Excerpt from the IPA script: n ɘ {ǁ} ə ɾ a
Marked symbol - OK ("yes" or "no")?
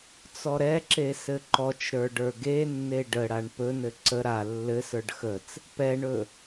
no